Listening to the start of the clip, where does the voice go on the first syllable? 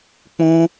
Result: high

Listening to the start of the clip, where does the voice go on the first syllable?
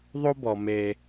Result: high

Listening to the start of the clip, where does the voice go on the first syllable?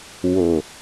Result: low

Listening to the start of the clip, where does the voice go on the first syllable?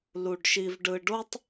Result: low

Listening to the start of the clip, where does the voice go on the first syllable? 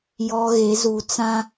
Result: high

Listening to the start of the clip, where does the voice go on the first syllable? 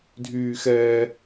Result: high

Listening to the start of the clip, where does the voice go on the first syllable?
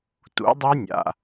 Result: rising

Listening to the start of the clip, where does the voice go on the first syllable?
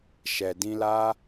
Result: low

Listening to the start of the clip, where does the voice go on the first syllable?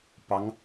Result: rising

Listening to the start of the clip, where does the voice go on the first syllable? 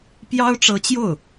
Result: high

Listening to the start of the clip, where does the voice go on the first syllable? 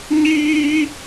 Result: high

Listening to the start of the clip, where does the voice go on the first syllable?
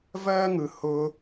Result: high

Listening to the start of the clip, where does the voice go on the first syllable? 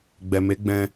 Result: low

